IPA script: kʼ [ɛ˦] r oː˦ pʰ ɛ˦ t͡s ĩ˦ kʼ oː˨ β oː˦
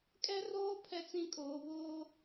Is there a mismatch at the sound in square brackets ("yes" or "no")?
no